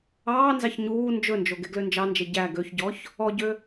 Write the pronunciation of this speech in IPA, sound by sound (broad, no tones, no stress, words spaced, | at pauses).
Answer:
ɑːnzɑç ɲuː nd͡ʒɵnd͡ʒo ɡeɡlønd͡ʒɑnd͡ʒe ɟæ ɡøçɟɔç | ɔɟø